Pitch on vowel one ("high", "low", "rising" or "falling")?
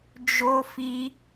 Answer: high